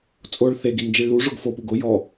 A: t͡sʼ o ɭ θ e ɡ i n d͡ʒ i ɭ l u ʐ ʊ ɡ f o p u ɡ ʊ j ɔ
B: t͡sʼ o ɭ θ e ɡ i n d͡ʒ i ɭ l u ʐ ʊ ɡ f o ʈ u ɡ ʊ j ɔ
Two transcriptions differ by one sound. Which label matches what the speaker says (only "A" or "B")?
A